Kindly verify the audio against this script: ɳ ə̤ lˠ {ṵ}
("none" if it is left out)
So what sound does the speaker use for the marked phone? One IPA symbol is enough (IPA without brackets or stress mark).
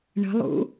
ṵ